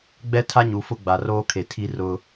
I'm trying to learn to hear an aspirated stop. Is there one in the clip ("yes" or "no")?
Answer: yes